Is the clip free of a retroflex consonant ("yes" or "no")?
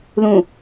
yes